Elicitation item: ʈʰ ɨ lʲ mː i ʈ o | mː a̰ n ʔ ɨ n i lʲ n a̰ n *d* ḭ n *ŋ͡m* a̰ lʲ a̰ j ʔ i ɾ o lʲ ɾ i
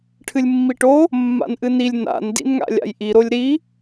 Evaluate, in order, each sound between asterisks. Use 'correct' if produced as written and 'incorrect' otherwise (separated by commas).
correct, incorrect